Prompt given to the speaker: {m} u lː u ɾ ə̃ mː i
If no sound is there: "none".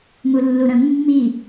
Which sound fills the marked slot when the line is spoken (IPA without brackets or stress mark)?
m